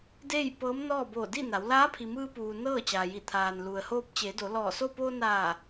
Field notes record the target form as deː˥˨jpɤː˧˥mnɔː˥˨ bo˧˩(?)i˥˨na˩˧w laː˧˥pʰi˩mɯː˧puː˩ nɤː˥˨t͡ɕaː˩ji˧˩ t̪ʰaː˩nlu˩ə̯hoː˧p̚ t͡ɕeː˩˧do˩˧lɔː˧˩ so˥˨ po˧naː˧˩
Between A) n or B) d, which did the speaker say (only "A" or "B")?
B